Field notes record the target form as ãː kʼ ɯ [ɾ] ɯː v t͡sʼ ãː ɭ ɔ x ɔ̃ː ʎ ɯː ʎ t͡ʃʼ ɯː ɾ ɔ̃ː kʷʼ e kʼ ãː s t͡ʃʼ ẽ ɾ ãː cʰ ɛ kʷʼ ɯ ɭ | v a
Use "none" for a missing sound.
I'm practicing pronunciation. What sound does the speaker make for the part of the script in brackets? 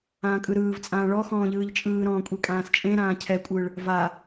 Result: ɾ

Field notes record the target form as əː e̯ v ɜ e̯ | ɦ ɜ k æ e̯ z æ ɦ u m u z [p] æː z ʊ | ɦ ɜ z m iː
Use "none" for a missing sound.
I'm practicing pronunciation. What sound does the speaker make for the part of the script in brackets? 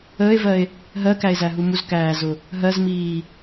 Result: k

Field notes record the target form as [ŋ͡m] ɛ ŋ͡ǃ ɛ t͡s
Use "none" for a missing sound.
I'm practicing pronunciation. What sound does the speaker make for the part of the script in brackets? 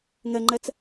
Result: ŋ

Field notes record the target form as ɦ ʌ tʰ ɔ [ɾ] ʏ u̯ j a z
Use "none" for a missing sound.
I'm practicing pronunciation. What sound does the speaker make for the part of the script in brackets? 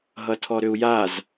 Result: ɾ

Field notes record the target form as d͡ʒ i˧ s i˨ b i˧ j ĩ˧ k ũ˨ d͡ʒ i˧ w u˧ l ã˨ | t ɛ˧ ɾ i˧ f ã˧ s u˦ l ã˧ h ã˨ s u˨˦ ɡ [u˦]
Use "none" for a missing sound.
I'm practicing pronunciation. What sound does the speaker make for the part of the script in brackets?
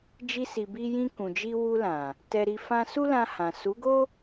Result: o˦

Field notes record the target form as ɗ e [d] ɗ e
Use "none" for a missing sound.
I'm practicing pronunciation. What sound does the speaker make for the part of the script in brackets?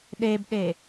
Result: b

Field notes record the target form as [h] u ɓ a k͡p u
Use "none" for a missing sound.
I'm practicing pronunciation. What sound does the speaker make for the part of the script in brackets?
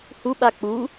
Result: h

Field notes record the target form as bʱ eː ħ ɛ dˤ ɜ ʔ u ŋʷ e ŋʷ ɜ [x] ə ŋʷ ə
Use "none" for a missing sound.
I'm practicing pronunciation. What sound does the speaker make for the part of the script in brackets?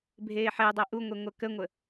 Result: k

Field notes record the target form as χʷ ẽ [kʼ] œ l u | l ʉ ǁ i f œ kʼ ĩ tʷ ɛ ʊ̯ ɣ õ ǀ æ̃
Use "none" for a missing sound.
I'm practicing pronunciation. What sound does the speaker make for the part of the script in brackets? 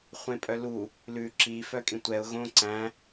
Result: pʼ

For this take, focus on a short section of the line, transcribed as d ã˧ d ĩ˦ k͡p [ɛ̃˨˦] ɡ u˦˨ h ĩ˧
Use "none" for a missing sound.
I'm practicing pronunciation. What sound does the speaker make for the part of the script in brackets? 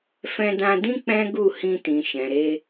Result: ɛ̃˦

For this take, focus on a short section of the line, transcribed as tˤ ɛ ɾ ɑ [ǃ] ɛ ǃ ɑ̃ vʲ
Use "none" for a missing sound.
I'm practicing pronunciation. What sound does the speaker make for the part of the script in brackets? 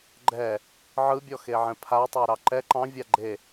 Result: ǃ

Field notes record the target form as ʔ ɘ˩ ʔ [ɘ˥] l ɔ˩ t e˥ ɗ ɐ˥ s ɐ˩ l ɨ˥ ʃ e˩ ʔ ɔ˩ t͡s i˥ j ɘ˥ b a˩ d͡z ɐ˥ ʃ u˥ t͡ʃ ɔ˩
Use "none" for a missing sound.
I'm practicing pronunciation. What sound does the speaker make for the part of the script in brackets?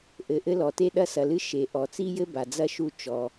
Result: ɘ˥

